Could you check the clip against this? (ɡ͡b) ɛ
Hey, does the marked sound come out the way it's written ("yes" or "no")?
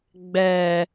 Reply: yes